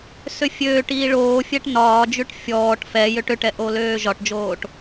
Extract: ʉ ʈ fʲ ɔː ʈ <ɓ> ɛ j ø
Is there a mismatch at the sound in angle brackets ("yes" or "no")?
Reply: yes